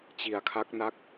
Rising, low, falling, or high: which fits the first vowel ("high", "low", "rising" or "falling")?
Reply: low